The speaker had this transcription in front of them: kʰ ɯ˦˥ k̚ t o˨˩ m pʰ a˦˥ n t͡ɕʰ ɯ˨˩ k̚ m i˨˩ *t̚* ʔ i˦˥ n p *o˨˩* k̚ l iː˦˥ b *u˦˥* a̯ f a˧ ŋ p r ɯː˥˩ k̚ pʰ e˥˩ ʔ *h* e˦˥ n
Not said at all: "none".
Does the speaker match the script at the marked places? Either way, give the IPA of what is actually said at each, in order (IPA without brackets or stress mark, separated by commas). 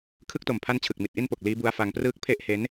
t̚, o˨˩, u˦˥, h